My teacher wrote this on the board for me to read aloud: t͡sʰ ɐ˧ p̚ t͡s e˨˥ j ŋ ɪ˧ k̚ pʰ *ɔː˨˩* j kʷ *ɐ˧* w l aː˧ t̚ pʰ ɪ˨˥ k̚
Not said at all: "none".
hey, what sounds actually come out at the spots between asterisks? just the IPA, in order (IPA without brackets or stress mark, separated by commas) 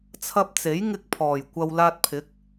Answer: ɔː˨˩, ɐ˧